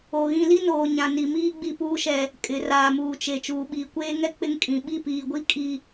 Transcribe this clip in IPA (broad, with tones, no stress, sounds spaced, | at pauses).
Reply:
o˨ ɣ ĩ˨ l i˦ n oː˨ ɲ ã˨ n i˨ m iː˦ ɡ͡b i˦ p uː˦ ʃ ɛ˦ | kʼ ɪ˨ r aː˨ m uː˨ t͡ʃ e˨ t͡ʃ uː˨ ɓ iː˨ kʷ eː˦ ŋ ɛ˦ k͡p ɪ˦ ŋ kʼ ĩ˨ ɓ i˦˨ p iː˨ ɡʷ i˦ kʼ i˦